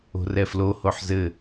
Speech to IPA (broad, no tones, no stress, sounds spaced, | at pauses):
o̤ r ɛ f l o h o ħ z ɘ